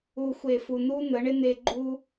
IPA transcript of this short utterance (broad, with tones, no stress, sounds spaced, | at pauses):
u˨ xʷ e˨ f u˨ n̪ u˦ n̪ ə˨˦ ɳ ɪ˦ n̪ e˧ ɡ͡ǃ u˦